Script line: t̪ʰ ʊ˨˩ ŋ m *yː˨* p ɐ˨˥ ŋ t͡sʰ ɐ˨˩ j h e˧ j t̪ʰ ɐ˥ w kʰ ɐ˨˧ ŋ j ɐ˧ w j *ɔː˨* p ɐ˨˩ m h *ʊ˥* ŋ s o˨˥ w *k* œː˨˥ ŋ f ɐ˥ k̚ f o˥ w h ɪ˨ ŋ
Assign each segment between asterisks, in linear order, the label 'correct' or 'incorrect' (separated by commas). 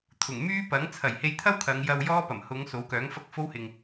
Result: incorrect, incorrect, incorrect, correct